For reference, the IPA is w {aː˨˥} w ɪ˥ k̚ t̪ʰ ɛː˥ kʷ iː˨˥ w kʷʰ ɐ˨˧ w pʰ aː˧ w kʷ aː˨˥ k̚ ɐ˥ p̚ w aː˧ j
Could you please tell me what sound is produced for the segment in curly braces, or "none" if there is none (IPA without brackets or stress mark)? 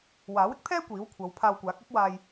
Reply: aː˨˥